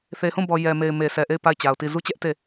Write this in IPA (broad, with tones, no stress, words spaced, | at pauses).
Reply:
θe˨hũ˦˨bɔ˨ jɛ˨me˨ɪ̯ me˨sɛ˨ʔe˦˨ɪ̯ pa˦˨ɪ̯t͡ɕa˨ʊ̯ti˦˨ zu˦t͡ɕɛ˦ʔ te˦˨